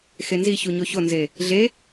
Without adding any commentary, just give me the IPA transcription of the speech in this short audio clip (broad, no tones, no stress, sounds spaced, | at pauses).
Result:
x e n z i ç u ɲ o ç o n z e | ɮ e